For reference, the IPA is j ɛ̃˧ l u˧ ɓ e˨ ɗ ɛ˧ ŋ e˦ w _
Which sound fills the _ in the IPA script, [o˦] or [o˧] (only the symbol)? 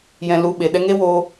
o˧